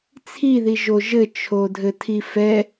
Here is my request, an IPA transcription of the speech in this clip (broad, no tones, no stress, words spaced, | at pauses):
t͡sʰiðiʒo ʒɘt͡ʃʰodʱɘtʰi fɛ